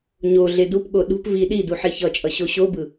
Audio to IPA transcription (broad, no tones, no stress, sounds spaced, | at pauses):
ɲ o ɮ e d u p ɠ o ɗ ṳ p v i ɗ i d u ħ e ç ʌ t͡ʃʼ ʌ ɕ o ɕ o b ɯ